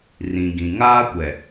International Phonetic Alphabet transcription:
r ĩ˨ ɡ ĩ˨ ŋ aː˦ kʷ ɛ˨

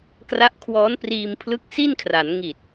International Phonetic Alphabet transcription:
k r a˦˥ ʔ kʰ w ɔː˦˥ n p r iː˧ m pʰ l ɯ˦˥ k̚ s i˥˩ n kʰ r a˩˦ n ŋ i˨˩ t̚

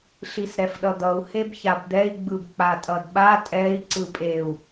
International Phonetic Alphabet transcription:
ɬ i s ɾ ɛ f ɗ ʌ d̪ ʌ u̯ h e b ç a b d̪ ɛ i̯ ɡ͡b ɯ b k͡p a tʼ ʌ d ɓ a tʼ ɛ i̯ ǀ ɯ pʼ e u̯

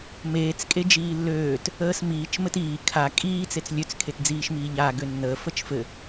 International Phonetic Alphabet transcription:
m eː t͡s kʼ e d͡ʒ iː lː øː t | əː s m iː t͡ʃ m ɘ t iː kʰ a kʼ iː t͡s e t͡s lʲ ø t͡s kʰ e t d͡z iː ʃ m iː ʎ aː ɡ ø nː əː f ə t͡ʃ f ɘ

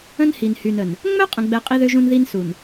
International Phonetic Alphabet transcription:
ə̃˦ n h i˨ n h y˨ n ə˨ n | ŋ͡m œ˦ qʼ ə̃˨ ɡ͡b ɛ˨ qʼ i˦ ð ø˦ ʒ ũ˦ n ð i˦ n s u˨ n

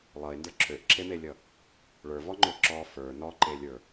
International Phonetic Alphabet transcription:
lˠ ʌ e̯ n d ə˞ ǁʰ ø ʔ ǁʰ e m e lʲ ʌ | ɭ ə˞ v ɔ ŋ͡ǃ ø ǁ ɔ f ə˞ n ɔ ǃ e lʲ ə˞

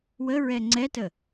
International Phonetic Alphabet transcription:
w ə ɹ ɛ ŋ͡ǀ ɛ t ə

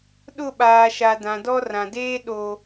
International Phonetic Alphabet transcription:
ɗ ʊ˦˨ ɓ aː˨ ʃ a˨ d ã˨ d ɔ˦ r ã˨ d eː˦ ɗ o˨

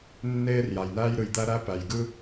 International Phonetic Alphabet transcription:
nː eː˥ r j a˩ j n æː˥ j ɾ ɯ˩ j d̪ æ˥ ɾ æ˥ p æ˩ j ɡ ɯ˥

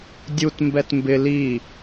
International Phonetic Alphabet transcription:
dʲ u t m b ɛ t m b ɪ l i

